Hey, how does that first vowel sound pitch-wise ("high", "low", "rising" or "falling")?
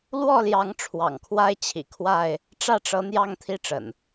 falling